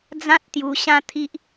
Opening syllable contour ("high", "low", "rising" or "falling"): high